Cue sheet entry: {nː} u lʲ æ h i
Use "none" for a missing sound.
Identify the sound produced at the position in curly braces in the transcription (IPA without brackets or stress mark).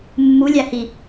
mː